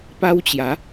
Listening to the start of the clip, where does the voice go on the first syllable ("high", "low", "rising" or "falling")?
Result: high